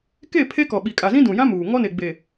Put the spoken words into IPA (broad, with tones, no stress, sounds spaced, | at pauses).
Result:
k e˦˨ pʰ e˦ k ɔ˨ ɓ i˨ kʼ a˨ z ĩ˦ d ũ˨ j ã˦ m uː˨ ŋ ɔ˦ n e˨ ɡ͡b e˨